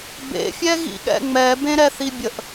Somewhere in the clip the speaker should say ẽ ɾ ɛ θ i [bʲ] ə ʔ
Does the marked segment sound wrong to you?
no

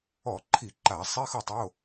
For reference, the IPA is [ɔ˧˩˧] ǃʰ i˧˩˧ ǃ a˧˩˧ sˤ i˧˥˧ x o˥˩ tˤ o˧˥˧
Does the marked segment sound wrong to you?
no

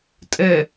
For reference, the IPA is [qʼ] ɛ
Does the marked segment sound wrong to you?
yes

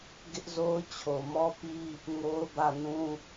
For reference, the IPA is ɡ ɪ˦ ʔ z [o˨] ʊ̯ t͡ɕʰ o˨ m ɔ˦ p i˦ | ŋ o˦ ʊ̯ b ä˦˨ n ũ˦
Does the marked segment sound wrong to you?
yes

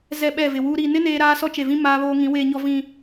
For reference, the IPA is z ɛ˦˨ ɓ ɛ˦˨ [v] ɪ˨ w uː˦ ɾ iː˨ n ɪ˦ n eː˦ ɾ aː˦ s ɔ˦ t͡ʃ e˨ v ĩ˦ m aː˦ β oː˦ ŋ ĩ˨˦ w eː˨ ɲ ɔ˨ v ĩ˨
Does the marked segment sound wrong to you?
no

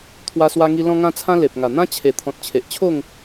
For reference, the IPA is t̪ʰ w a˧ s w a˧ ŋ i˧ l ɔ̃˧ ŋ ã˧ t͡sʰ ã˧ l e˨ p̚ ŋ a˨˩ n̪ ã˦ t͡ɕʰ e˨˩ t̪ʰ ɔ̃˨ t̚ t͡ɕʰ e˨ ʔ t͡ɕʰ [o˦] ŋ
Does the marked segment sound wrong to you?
yes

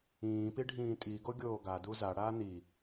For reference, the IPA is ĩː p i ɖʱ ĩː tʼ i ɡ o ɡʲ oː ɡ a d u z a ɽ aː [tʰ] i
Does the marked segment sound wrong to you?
yes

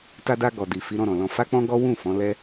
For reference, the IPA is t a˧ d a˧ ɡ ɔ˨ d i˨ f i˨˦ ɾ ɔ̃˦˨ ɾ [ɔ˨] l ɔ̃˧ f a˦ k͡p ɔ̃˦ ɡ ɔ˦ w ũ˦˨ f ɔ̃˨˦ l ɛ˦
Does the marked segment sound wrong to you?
yes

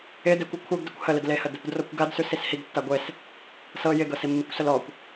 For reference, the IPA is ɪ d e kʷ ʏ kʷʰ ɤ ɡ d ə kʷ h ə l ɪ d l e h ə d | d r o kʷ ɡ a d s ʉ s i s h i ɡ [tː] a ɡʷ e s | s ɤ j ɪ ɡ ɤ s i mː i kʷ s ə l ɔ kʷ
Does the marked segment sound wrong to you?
no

